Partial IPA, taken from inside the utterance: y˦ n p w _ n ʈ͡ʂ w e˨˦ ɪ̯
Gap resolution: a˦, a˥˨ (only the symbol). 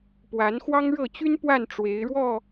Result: a˥˨